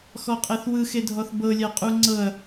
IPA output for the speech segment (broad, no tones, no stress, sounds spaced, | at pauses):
x ɔ qʼ ɛ θ w ɯ x e dʱ ɔ θ b ɤ lʲ a qʼ u ŋ͡ǀ ɤ ɐ̯